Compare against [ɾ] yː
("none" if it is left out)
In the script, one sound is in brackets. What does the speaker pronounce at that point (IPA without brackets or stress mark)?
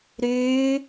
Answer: ɾ